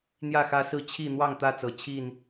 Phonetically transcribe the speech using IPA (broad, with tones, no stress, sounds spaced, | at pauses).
n̪ j ä˥˨ x ä˦ s ɹ̩˥˨ t͡ɕʰ i˥˨ n̪ w ɑ˥˨ ŋ t̪ ä˥˨ t͡s ɤ˨˩ t͡ɕʰ i˥˨ n